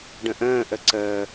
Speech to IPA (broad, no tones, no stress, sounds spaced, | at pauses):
ɖ ə̃ ʔ ə̃ː ʔ ə ǀ əː